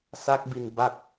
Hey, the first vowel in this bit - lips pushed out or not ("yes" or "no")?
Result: no